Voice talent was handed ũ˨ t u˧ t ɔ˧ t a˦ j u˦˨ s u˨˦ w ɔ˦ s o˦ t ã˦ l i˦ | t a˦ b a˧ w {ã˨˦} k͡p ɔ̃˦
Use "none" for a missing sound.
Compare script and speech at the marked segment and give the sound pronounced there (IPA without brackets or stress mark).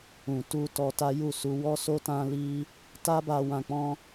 ã˧